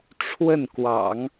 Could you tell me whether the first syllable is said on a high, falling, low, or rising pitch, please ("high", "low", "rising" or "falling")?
falling